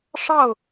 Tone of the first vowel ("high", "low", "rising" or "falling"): falling